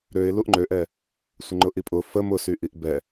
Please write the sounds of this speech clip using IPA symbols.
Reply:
ɾ ø ɪ̯ l u ʔ ŋ͡ǃ ø ʔ ɛ | sʷ ɪ ŋ͡ǃ ʊ ʔ i pʼ ʊ f ə m ʊ s y ʔ i ʔ b ɛ

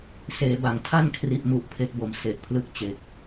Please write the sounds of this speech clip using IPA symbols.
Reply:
s eː˩˦ b a˩˦ ŋ tʰ a˥˩ n kʰ r i˨˩ ʔ m u˨˩ ʔ pʰ e˦˥ k̚ b o˩˦ m s e˨˩ ʔ pʰ l ɯ˥˩ k̚ t͡ɕ e˨˩ k̚

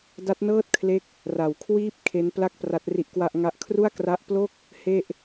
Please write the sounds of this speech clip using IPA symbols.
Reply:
d a˦˥ t̚ n ɤː˥˩ t̚ kʰ l e˦˥ k̚ | r a˩˦ w kʰ w iː˥˩ p̚ kʰ e˦˥ n p l a˥˩ k̚ p r a˦˥ t̚ r i˦˥ ʔ k w a˥˩ ʔ ŋ a˥˩ ʔ kʰ r u˥˩ a̯ k r a˦˥ ʔ p l o˥˩ k̚ | h e˥˩ ʔ

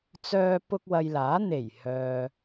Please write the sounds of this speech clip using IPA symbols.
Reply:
t͡s œː˧ p ʊ˧ k̚ w ɐ˨ j l aː˨˥ n̪ e˨˩ j h œː˨

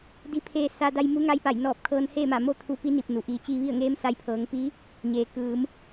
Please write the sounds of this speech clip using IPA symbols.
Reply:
d i˧˥ pʰ eː˧ s a˧ d a˧ j m u˧˥ ŋ a˧˥ j p a˧˩ j n ɔː˧˩ p̚ kʰ ɤː˧ n h eː˥˨ m a˧˩ m o˥˨ t̪ʰ u˧ p i˧˥ n i˧˩ p̚ n u˩ ʔ iː˩˧ t͡ɕ iː˧ ʋ i˥˨ ə̯ ŋ eː˧˥ m s a˧˥ j pʰ ɤː˩˧ ŋ p i˧˥ | ɲ eː˩ k ɯː˩˧ m

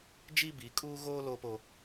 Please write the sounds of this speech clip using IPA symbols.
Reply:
d͡ʒ i˦ b i˨˦ kʼ uː˦ ɣ oː˦ l oː˦ p o˦

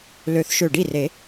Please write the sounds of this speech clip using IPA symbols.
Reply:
l ø˨˩˦ θ ʃ ø˧˩ ɖ i˥˩ r e˨˩˦

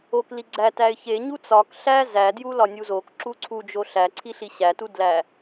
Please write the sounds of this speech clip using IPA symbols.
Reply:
o k l i ɡ͡ǀ æ t æ ɪ̯ ç e ɲ u t͡s ɒ k ɬ æ z æ d j u l ɒ nʲ u z o k ǁ u ǀʰ u d͡ʒ o ɬ æ ǀʰ i ɬ i ɕ æ t u d l æ

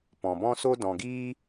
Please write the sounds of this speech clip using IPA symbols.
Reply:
p ɔ̃˨ b ɔ̃˦ s o˦ d ɔ̃˨ ɡ iː˦

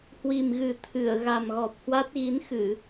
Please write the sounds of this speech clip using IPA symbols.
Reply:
h w i˨˩ m ɣ ɨ˨˩ t̪ʰ ɨ˧˩ ə̯ ɣ a˨˩ m ɣ ɔ˨˩ p̚ h w a˦˥ t̚ ɣ i˨˦ n x ɨ˧˩˨

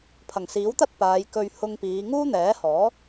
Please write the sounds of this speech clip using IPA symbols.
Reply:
pʰ ɐ˨˩ ŋ s iː˨˥ w t̪ ɐ˥ t̚ p aː˨˧ j k ɵ˧ ɥ h ʊ˧ ŋ p iː˨˧ ŋ uː˥ n̪ ɛː˨˥ h ɔː˨˥

